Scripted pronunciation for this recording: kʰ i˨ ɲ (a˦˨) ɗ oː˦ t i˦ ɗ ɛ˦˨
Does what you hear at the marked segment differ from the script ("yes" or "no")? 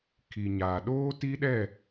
yes